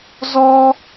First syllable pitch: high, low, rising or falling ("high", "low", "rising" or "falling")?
high